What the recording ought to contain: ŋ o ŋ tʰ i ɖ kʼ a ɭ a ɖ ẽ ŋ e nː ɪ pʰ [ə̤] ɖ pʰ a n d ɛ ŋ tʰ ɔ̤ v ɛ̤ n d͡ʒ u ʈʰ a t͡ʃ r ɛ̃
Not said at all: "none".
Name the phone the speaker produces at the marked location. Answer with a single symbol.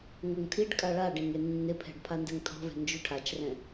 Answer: ɛ̤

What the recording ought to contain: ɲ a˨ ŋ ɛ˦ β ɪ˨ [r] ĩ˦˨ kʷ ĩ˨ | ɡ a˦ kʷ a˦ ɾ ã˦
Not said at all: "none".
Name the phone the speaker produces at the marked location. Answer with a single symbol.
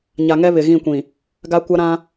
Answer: ɣ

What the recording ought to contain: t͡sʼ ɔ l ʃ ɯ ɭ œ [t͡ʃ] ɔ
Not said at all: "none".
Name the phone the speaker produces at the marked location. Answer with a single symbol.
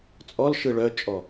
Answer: t͡ʃʼ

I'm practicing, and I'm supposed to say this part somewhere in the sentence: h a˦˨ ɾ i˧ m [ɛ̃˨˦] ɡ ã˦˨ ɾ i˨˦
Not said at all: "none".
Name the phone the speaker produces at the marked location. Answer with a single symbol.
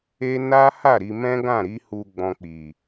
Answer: ɛ̃˦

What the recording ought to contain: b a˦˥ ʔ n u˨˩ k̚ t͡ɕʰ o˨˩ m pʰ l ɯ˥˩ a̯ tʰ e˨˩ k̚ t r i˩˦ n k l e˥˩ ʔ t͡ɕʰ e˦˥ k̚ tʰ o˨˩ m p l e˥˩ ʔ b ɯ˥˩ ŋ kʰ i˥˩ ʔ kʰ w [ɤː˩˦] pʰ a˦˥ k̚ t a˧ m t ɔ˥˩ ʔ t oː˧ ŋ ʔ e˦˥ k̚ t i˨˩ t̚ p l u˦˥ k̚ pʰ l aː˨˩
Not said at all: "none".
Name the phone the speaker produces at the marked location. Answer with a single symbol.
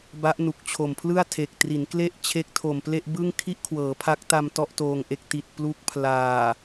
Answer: ɤː˩˦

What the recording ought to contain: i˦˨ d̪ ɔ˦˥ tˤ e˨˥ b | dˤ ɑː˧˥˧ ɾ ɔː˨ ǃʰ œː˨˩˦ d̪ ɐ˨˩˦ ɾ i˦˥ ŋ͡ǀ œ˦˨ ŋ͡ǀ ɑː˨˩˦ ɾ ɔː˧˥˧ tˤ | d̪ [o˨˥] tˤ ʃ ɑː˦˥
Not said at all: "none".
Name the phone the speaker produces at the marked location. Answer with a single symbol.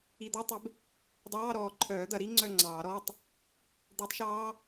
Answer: o˨˥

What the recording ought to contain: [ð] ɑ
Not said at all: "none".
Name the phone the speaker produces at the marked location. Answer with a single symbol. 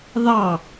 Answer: ð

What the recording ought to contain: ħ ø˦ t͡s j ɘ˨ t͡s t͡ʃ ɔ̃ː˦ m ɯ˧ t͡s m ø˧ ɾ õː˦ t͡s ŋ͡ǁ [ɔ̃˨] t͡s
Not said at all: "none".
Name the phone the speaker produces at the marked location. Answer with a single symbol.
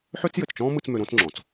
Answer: ɔ̃˨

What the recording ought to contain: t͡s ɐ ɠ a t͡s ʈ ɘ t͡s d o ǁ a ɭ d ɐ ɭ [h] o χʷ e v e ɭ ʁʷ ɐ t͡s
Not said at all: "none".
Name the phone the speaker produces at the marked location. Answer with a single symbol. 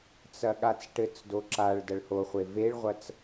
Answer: h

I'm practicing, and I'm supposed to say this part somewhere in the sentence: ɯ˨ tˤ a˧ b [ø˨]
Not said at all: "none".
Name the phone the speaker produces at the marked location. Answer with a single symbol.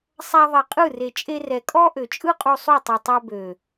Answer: ø˨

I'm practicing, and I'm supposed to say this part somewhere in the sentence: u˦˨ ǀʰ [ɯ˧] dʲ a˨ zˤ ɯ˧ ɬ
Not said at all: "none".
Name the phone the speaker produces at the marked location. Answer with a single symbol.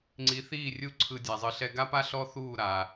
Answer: ɯ˧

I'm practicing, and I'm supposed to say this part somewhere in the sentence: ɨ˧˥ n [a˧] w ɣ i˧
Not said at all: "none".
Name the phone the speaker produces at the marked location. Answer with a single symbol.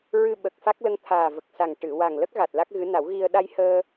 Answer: a˨˩˦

